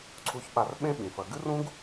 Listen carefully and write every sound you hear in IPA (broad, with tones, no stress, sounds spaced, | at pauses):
ǀʰ u˧ ç ɓ a˧ r ɓ ẽ˦ ɓ ĩ˨ f ɐ˧ ɡ ɨ˦ r ũ˦ ɡ